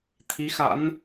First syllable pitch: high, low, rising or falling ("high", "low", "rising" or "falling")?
rising